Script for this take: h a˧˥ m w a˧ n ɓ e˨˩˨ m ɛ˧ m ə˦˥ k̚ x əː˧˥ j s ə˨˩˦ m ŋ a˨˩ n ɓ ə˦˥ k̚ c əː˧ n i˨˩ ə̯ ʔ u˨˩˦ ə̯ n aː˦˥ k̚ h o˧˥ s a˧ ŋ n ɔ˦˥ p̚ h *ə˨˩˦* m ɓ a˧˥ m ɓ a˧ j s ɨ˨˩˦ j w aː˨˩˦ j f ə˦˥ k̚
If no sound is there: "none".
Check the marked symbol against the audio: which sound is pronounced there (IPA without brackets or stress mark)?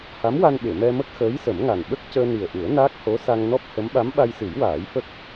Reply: ə˧˥